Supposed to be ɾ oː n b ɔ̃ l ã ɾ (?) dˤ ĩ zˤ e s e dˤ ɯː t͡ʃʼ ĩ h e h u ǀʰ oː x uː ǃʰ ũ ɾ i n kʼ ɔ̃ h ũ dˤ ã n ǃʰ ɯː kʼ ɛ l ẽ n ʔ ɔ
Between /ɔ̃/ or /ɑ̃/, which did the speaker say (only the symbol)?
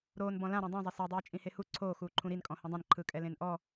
ɔ̃